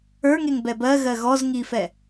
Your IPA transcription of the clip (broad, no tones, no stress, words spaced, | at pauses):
ə˞ŋeŋbɛ bɜɣɜ ɣɔzŋifɛ